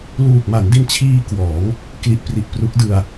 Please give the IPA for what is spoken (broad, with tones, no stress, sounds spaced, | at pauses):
l uː˨˩ k̚ m a˩˦ n d i˧ n t͡ɕʰ iː˧ k w ɔː˩˦ ŋ | k l i˨˩ ʔ p r i˨˩ ʔ p r u˦˥ k̚ d ɯ˧ a̯